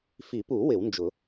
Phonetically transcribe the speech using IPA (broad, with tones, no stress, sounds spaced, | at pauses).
f i˨˩˦ p u˨˩˦ w ɪ˨˩˦ w n d͡ʒ ʊ˨˩˦